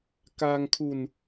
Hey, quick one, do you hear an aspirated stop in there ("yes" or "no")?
yes